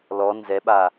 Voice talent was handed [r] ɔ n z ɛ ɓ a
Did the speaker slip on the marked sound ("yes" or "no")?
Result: yes